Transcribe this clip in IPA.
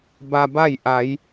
b a˧ b a˥˨ j ʔ a˩˧ j

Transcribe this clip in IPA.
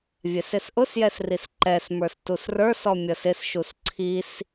vʲ ɛ s ɪ s ʔ ʊ s j ɛ s r i s ǃ ɛ s m ə˞ s t u s r ə˞ s ɔ mʲ ʌ s ɪ s ʃ u s ǀʰ i s

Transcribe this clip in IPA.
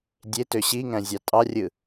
dʲ e t ø ɕ i ŋ æ̃ zʲ ɑ tʼ ɑ rʲ ɯ

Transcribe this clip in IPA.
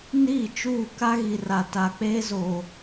n iː˦˨ t͡ʃ uː˦˨ k a˦ ɣ i˨ r a˨ t a˨ k͡p eː˦ z o˨

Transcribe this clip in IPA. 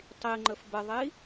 tˤ i ŋ͡ǃ ə f b ə ðˤ i

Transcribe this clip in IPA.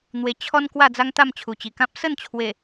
n̪ w e˧ t͡ɕʰ ɔ˦ n k w a˥˧ d͡z a˦ ŋ t̪ a˥˧ m t͡ɕʰ u˨˩ t͡ɕ i˨˩ k ã˦ p̚ s ə˥˧ n t͡ɕʰ w e˨˩

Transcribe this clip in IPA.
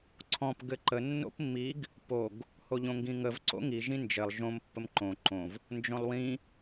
ǀʰ ɔ̃ p ɡ ɘ ǃ ə nː o̰ p mː i ɡ | p o ɡ | h o ʎ õ ŋ ɡ ĩ ŋ ə v ǀ o̰ ŋ i ʒ ĩ n d͡ʒ ɘ lˠ ʒ õ m pː ə m ǃ õ ǃ õ v | n d͡ʒ õ lˠ w ĩ

